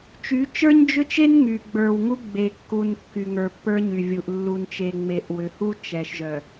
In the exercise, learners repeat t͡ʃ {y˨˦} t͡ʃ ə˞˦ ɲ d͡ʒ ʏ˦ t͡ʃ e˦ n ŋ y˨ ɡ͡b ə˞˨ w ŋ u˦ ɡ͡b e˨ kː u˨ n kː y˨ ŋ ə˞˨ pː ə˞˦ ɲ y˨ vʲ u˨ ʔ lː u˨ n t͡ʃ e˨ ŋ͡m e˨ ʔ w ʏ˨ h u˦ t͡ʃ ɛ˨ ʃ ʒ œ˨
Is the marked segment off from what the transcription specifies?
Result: no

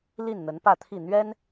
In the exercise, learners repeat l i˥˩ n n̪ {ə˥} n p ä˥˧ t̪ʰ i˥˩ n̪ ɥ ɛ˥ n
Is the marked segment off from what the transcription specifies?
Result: yes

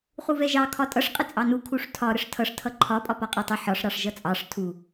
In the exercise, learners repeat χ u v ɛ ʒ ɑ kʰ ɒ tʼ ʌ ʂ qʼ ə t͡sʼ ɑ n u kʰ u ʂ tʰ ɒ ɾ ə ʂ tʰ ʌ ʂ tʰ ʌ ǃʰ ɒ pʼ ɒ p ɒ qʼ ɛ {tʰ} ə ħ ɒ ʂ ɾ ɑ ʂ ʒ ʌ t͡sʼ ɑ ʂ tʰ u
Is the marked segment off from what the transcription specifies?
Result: yes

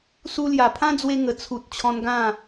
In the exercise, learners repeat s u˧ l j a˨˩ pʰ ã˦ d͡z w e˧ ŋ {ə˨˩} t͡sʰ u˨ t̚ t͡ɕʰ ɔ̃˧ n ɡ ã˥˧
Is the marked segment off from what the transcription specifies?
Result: no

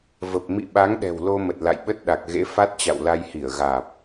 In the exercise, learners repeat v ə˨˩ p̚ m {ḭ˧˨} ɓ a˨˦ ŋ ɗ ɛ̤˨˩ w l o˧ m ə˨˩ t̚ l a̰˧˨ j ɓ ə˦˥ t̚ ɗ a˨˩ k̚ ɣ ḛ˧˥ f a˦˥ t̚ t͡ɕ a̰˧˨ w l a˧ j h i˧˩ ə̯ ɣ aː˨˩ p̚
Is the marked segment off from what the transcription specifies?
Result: no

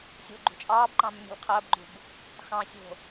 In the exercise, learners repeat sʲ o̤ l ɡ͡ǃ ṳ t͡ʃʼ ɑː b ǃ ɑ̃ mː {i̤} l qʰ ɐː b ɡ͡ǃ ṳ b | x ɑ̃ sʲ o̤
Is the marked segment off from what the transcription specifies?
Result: no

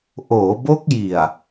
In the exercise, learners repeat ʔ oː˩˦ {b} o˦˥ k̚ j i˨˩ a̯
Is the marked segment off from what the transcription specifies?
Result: no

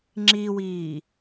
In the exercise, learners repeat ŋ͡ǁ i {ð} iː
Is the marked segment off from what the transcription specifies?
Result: yes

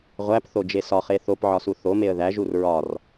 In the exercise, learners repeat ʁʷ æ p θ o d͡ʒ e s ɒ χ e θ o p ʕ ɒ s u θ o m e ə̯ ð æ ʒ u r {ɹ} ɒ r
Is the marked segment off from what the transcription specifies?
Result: no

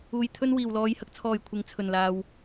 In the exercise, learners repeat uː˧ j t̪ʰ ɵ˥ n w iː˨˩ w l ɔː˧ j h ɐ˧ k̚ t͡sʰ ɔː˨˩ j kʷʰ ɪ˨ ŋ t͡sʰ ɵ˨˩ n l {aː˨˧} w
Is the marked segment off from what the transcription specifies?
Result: yes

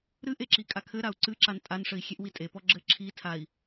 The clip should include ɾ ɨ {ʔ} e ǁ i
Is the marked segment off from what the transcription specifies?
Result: no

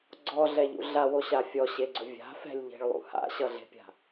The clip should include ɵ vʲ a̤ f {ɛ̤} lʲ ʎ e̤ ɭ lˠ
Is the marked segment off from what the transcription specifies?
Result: no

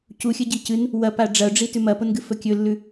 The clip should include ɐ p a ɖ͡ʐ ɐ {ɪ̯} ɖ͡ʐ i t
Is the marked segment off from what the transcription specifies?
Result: yes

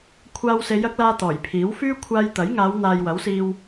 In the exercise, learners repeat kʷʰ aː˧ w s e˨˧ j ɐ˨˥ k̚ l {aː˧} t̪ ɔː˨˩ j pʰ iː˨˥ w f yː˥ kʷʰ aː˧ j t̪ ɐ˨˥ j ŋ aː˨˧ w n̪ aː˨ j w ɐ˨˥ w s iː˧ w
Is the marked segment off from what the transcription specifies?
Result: no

